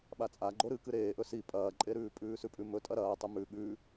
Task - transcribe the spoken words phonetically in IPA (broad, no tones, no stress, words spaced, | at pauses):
ɓat͡sʼaɡ͡ǃo ɾɨkɨ ɾeːʔɵ si pʼɐːǃʼeɾʉː pʼʉːsʉpʼʉmɵ tʼɐɾɐːtˤɨ mʉ ɠʉ